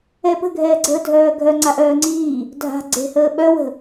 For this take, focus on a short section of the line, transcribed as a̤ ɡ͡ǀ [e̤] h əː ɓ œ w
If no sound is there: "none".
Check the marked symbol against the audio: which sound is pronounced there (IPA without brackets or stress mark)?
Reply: e̤